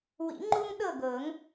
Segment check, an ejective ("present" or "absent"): absent